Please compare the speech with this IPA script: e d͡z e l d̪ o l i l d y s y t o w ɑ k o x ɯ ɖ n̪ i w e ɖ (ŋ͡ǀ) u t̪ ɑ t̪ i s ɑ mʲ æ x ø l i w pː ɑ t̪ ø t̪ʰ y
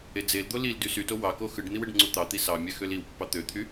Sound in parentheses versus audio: correct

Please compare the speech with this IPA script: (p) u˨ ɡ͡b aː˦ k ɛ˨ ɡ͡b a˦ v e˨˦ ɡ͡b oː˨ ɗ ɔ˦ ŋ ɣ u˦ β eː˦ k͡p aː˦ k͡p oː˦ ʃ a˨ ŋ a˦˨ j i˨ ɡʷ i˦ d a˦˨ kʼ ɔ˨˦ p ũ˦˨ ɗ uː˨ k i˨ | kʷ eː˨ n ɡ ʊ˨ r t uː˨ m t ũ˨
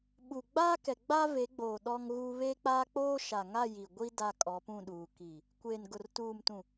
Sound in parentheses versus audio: incorrect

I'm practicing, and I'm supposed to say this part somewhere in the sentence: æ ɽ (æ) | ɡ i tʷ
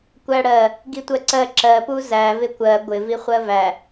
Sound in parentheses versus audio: incorrect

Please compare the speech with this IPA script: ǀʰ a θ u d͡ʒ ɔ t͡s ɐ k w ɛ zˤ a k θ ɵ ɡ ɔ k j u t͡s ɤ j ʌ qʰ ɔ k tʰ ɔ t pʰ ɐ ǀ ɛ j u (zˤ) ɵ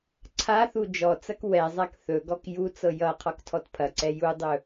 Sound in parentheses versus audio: incorrect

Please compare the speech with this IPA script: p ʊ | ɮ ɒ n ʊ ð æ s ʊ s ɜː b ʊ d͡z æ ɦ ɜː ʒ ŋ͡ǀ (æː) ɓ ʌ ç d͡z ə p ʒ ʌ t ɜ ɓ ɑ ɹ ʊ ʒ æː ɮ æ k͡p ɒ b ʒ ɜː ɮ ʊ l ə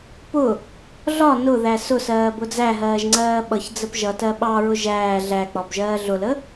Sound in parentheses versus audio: incorrect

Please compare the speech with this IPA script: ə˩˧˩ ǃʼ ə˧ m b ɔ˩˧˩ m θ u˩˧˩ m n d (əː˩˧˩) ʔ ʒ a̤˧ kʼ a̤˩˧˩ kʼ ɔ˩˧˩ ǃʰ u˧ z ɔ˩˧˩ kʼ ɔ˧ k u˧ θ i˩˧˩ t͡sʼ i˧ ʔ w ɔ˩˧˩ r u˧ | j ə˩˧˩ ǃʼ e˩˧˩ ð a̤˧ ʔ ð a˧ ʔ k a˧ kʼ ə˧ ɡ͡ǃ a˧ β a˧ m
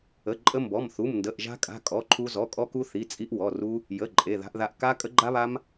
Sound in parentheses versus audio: incorrect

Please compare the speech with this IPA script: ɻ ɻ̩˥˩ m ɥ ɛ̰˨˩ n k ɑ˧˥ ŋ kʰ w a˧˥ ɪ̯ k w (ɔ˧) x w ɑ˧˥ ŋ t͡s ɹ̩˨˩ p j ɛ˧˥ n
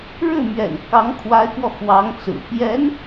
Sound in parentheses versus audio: correct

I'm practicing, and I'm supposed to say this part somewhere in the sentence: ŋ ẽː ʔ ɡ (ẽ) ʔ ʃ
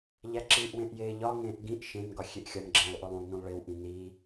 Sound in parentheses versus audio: incorrect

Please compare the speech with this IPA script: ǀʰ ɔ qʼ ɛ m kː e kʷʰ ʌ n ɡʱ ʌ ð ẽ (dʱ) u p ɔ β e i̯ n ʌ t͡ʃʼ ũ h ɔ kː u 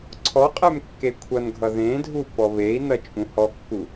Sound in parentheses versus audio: correct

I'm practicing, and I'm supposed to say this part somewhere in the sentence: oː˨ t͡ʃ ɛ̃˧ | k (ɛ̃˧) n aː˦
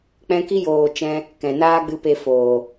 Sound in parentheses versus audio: incorrect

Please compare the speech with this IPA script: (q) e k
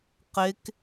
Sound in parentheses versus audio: correct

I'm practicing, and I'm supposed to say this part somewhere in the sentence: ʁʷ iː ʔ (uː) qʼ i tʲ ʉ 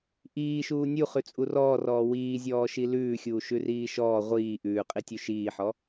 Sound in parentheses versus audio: incorrect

